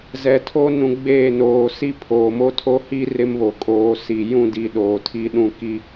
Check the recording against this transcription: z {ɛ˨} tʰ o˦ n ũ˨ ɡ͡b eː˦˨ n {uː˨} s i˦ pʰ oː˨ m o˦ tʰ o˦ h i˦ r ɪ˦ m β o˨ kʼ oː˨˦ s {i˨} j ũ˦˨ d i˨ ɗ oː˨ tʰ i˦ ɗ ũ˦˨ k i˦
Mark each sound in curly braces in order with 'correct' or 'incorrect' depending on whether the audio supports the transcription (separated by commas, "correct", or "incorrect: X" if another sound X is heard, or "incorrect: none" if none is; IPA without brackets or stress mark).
correct, incorrect: oː˨, correct